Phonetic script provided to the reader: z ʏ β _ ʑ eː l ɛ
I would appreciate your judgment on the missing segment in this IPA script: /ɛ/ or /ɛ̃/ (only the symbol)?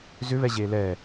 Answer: ɛ